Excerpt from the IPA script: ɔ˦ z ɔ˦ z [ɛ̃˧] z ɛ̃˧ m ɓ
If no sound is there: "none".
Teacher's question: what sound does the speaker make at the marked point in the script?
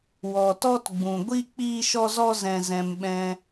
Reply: ɛ̃˧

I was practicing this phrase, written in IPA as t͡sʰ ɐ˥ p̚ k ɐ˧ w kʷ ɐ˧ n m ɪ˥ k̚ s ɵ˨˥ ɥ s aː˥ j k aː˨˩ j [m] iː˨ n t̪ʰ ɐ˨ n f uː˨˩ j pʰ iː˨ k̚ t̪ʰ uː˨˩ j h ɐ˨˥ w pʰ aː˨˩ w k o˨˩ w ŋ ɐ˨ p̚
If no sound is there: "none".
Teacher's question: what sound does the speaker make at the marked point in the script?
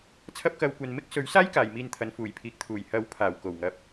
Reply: m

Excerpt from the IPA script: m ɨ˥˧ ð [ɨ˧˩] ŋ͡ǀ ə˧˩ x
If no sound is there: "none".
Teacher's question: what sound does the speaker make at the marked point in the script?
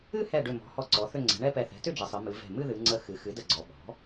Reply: ɨ˩˧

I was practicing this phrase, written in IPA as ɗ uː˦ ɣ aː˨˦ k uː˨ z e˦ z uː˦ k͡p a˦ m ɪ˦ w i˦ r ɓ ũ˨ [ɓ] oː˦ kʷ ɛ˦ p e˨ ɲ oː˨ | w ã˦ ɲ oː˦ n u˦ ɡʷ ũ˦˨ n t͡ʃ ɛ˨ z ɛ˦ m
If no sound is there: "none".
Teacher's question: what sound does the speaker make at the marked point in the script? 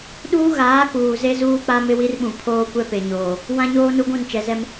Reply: pʰ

